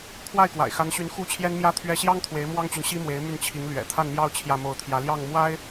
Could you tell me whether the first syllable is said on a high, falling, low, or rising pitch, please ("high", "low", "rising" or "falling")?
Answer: falling